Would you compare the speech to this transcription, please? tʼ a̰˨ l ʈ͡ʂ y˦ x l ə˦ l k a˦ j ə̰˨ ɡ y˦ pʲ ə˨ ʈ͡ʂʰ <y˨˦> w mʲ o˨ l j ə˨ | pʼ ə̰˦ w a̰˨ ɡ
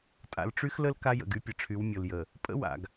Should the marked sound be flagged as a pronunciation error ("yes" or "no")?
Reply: no